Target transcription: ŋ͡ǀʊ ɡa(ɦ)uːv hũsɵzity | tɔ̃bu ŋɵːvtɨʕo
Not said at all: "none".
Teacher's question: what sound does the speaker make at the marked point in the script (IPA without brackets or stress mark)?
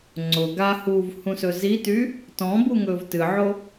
h